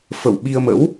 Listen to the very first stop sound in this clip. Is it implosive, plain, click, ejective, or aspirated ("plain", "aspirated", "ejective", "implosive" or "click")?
implosive